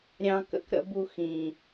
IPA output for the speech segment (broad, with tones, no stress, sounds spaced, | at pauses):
ɾʲ ɑ̃˦ k ə̰˦ k ɾ ə̰˦ b u˦ x ĩ˨